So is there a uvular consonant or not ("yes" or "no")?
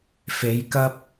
no